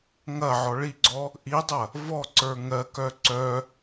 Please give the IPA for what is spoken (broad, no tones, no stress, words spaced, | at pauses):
ŋɐ ʕɔɭiɡ͡ǀɔ | ʔidˤɐ | vɔǀə˞ ŋɜkœ ǀœ